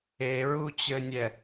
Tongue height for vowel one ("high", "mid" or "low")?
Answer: mid